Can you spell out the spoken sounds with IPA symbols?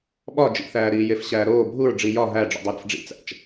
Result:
ɓɒ d͡ʒḭθæː ɾiːjefɕæːɾoː bʱuɹ ɖ͡ʐijɒ ɦæɖ͡ʐṵdˤu ɾæ̰fɖ͡ʐḭt͡sæ̰t͡ʃ

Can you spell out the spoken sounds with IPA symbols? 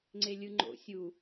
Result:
ŋ͡ǀelʲɯŋ͡ǃo̰ sʲu

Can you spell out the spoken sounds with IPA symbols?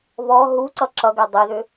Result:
βɔ ɦuǀʌ ǁʌɡɛ dˤeðʏ

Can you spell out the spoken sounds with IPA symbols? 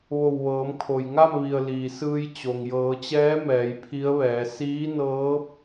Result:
ʋo˧˩wʋɤː˩˧mkʰo˩j ŋa˥˨mʋi˩ə̯ liː˩sɯː˧j t͡ɕo˩ŋjɤː˩˧t͡ɕɛː˧˥ mɛː˩˧jpʰi˧˥ə̯ʋɛː˩˧ siː˧˥nɤː˧˥p̚

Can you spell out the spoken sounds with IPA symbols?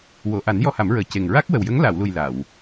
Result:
wo˨˩˨ʔa˨˩˦n jɔ˧ha˨˩˦mɹəː˨˩ ce˨˩ŋ ɹa˦˥k̚wə˨˩wjə˧˥ŋ la˨˩˨wlu˨˩j la˨˩˨w

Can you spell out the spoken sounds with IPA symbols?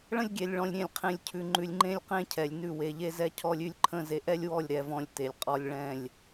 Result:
ɭə̃˦lʲɡʲɛ˨lʲɭɔ̃˨lʲ ɾʲẽ˨lʲqʰẽ˨lʲcʰʉ˨ŋ͡ǃʉ˨lʲ ŋ͡ǃẽ˦lʲqẽ˦cʰɛ˨lʲnʉ˦˨ we˨ʎe˦zɛ˦cʰɔ˦lʲ ʉ˦lʲǃʰə̃˦ ze˨ʔɛ˦lʲwɔ˦˨lʲɾɛ˨ vɔ̃˦lʲte˨lʲqʼɔ˦lʲ ɭɛ̃˦˨lʲ

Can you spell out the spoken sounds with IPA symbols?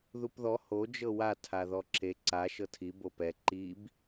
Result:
ðupðɔ ho d͡ʒɤwa tʰaðɔǁe ǀa ʃɤtʰi bopɛ ǃib

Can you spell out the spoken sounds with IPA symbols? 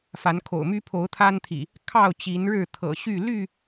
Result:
fa˨˦nkʰo̰˨˩ʊ̯ my˦pʰo˨˦ʊ̯t̪ʰa˦nt̪ʰḭ˨˩ | kʰɑ˥˨ʊ̯ t͡ɕi˨˦nɻɻ̩˥˨t̪ʰɤ̰˨˩ ɕy˥˨ ly˥˨

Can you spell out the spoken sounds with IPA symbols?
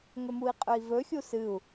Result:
ŋɵmui̯qʼɵi̯vɵ xʲusɨu̯

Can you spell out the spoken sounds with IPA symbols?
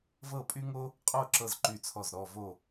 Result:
vɤ˥˧pʼy˥ŋo˥ | qʼo˥˧ ǁɤ˥˧zǃy˥˩t͡sʰɔ˥˩z ɾɔ˥˧vo˥˧

